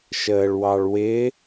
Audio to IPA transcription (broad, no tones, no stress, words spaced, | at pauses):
ʃəːɭwɑɭwɪ